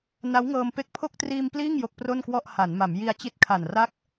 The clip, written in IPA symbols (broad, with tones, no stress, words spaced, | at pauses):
na˦˥wŋɤː˧m pe˦˥k̚pʰo˥˩k̚triː˧m pliː˥˩ŋ jo˦˥k̚pro˥˩nkwɔ˥˩ʔ ha˩˦nma˩˦m ji˧a̯t͡ɕi˦˥t̚kʰa˨˩n ra˦˥k̚